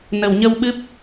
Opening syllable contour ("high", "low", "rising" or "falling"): low